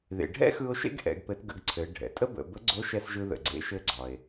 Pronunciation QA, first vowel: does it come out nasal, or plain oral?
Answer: oral